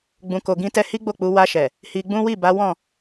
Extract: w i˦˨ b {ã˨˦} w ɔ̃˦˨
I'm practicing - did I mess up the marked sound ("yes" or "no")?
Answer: yes